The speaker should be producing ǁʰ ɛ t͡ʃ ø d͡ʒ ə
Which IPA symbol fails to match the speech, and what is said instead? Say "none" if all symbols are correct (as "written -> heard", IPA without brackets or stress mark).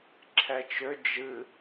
ə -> ɨ